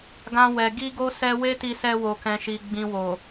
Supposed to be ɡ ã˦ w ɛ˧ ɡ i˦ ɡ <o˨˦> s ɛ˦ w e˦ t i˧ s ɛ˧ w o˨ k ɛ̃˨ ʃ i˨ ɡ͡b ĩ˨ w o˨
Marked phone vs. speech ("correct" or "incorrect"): incorrect